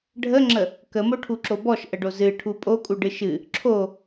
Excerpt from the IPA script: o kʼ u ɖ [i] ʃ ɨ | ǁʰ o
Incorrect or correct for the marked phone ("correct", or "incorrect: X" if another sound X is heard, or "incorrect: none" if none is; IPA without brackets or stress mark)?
incorrect: ɨ